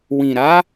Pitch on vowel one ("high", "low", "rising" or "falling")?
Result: low